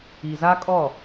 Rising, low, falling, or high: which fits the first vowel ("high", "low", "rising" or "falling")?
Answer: low